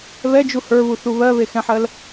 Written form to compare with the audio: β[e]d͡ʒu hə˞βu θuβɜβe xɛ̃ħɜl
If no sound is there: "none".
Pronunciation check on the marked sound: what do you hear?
ɛ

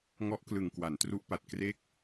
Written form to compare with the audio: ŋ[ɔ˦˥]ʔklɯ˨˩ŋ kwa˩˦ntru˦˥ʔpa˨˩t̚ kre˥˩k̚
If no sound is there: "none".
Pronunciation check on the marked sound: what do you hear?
ɔ˦˥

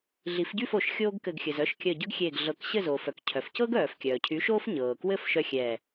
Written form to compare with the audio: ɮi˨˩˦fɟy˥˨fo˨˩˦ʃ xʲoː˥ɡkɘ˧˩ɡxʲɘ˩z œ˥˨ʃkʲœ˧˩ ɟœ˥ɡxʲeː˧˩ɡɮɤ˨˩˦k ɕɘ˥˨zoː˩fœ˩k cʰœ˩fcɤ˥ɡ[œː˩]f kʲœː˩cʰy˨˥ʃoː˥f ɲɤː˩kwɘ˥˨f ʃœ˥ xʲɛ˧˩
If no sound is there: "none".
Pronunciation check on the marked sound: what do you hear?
œː˩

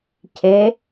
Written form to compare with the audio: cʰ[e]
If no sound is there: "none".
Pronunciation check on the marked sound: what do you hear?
e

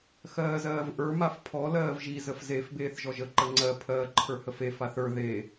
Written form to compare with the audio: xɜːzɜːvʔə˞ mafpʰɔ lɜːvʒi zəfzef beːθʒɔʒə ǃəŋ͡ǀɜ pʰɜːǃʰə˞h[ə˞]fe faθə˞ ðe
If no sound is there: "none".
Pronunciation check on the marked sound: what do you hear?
ə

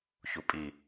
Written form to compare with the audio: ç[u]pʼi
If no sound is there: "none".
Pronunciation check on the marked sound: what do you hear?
u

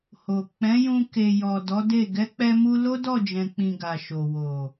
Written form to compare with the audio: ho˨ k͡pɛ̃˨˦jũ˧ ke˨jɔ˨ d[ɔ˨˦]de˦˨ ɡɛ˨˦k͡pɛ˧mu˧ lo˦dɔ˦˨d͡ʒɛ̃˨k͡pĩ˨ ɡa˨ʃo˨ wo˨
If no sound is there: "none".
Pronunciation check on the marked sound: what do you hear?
ɔ˨˦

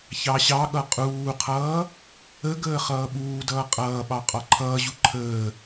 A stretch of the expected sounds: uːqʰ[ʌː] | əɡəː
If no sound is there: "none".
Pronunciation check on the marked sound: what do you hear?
ʌː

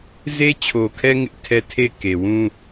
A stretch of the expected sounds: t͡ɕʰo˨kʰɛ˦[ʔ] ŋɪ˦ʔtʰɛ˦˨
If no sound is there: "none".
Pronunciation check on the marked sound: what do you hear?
none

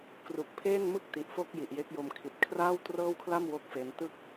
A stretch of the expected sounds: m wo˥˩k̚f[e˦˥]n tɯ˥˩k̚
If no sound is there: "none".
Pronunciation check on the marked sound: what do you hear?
e˦˥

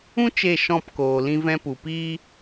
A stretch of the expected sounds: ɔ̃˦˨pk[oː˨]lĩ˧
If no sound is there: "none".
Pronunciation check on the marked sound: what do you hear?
oː˨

